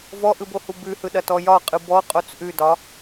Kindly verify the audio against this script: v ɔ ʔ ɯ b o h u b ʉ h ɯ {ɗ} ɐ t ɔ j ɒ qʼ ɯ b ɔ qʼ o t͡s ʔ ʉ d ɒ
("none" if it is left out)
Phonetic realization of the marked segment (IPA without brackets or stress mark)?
ɗ